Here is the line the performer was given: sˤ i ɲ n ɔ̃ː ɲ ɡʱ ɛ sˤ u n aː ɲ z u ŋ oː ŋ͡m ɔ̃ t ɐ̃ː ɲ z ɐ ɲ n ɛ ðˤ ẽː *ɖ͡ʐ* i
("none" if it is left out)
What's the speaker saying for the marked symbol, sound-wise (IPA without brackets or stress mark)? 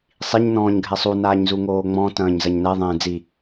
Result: d͡z